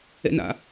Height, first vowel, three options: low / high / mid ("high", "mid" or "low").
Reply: mid